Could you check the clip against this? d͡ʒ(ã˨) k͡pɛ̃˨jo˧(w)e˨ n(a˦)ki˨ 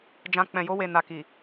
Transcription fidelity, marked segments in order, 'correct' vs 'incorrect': correct, correct, incorrect: a˨

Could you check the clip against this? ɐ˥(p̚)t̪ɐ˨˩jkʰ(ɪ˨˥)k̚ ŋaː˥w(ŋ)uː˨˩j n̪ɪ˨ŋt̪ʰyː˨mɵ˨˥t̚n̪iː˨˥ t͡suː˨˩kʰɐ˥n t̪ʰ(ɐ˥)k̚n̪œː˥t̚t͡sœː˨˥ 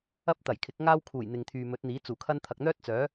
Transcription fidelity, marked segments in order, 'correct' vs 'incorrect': correct, correct, incorrect: kʰ, incorrect: ɐ˨

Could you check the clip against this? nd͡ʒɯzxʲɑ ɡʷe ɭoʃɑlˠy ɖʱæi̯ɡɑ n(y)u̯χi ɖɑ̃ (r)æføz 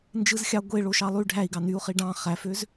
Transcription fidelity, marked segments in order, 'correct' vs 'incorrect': correct, incorrect: χ

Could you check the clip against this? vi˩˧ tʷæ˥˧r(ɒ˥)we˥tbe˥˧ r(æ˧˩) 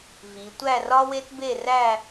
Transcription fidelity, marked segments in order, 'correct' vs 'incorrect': correct, incorrect: æ˥˧

